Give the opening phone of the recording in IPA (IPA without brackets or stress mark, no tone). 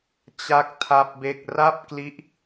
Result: t͡ɕ